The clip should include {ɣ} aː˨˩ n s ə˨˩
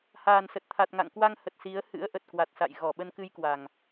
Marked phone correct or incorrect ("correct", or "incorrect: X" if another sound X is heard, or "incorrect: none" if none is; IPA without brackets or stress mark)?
incorrect: h